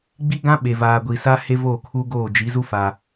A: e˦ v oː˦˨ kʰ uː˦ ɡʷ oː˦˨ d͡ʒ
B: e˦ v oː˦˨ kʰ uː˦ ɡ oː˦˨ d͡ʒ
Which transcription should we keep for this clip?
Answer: B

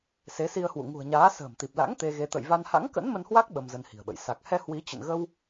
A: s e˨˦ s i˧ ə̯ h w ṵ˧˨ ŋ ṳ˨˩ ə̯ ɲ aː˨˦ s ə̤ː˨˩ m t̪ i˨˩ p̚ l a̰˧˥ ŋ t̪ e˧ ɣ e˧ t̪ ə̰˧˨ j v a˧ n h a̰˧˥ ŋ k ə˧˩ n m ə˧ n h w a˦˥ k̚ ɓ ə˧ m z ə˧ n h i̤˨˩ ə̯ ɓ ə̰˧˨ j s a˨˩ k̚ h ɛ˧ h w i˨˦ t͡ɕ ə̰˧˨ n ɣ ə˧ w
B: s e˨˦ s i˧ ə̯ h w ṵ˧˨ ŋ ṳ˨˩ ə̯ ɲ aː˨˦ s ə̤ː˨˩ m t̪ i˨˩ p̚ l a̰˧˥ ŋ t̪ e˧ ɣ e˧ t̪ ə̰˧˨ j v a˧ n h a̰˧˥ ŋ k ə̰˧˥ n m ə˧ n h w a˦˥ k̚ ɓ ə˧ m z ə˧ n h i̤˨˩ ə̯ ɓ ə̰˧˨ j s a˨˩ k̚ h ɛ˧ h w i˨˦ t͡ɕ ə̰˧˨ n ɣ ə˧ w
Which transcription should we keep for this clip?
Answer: B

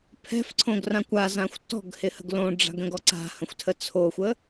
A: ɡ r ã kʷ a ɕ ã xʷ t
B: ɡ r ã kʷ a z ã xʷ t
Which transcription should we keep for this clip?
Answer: B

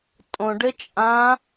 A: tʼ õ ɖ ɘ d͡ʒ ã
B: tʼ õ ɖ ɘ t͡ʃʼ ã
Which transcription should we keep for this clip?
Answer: B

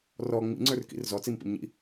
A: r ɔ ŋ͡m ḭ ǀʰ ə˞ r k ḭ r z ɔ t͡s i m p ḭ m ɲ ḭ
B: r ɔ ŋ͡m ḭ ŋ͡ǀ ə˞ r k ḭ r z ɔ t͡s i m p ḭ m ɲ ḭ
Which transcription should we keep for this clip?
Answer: B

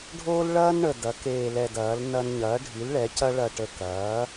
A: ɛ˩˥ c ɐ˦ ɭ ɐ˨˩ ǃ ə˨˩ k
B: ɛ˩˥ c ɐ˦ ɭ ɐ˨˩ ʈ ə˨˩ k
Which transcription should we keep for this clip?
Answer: B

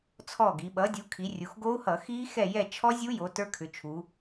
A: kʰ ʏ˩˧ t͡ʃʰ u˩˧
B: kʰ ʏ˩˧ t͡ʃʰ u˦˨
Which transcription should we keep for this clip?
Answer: A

